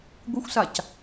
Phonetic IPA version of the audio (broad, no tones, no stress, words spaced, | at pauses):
ɡʷɪxʷsac